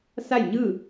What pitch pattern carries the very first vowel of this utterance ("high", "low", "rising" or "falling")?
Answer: falling